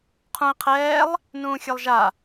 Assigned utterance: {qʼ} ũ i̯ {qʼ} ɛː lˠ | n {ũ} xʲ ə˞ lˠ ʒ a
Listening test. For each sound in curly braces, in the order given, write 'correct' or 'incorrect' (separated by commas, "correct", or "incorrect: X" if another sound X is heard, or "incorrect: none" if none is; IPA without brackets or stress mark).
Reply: incorrect: qʰ, incorrect: qʰ, incorrect: ũː